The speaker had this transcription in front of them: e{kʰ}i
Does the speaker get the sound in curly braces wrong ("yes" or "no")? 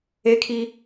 no